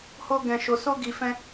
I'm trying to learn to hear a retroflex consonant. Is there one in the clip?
no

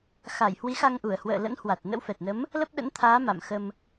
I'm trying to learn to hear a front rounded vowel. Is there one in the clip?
no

